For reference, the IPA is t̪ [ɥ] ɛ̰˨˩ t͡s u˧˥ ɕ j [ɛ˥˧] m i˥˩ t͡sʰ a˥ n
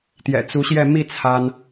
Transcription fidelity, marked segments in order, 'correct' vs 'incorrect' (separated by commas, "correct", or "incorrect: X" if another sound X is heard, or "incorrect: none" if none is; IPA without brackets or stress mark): incorrect: j, correct